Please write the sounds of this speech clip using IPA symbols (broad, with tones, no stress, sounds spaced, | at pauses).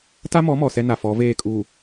t a˦ m ɔ˨˦ m ɔ˨ s ɛ˦ n a˨ f ɔ˨˦ v eː˦˨ kʼ uː˨